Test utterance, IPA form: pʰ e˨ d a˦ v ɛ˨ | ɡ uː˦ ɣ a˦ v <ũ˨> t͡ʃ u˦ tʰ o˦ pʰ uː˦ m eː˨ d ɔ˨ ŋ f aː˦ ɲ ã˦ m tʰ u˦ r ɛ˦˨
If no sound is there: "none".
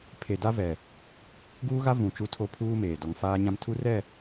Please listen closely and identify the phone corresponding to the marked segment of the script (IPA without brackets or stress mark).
ũ˨